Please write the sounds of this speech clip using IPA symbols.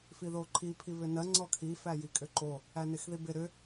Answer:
fiðoǃʰi pʰiβʏnɜ ŋ͡ǀɔkʰi fæjikʼʏǃo | ænɪxðibɪ ɾʏ

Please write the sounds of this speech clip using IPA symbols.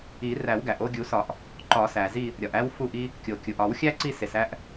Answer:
i˨˩˦ ræ˨˩˦wɡæ˩ʔ o˦˨ɡʲu˨˩˦sɒ˨˩˦ʔ | ǃɒ˨˩˦sæ˩zi˦˨ | ɾʲɒ˩ʔæ˦w fu˦˨ʔi˦ | kʲo˩kʲu˩ʔ ɒ˨˩˦wxʲæ˦ ǀi˦˨se˩sæ˦ʔ

